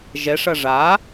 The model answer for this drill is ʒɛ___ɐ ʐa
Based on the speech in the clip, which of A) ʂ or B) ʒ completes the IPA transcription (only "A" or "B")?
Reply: A